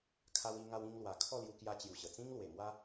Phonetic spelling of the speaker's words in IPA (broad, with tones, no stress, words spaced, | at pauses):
kʰa˧wi˧ŋa˧wĩ˧ŋ lwa˨˩ kʰɔ˥˧lju˧kja˧t͡ɕju˨˩ ɕə˨˩t͡sĩ˦ŋlwe˨˩mwa˦